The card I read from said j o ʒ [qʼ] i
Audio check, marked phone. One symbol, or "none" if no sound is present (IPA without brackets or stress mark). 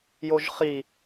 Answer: χ